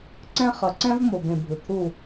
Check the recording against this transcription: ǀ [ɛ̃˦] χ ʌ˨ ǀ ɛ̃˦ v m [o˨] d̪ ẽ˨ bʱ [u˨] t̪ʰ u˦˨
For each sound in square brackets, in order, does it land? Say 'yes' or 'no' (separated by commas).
yes, yes, no